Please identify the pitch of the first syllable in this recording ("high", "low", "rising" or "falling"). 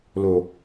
low